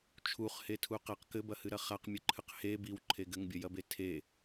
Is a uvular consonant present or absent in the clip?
present